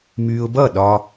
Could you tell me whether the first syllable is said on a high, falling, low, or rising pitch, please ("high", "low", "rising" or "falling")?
low